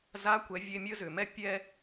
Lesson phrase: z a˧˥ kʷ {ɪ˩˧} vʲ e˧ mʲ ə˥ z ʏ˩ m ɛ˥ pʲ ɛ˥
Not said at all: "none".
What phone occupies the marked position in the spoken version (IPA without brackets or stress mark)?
ɛ˩˧